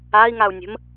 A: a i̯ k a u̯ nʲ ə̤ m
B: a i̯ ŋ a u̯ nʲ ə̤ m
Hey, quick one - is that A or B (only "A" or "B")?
B